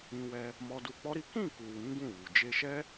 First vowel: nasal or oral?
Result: nasal